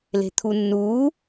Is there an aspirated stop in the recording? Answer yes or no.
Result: yes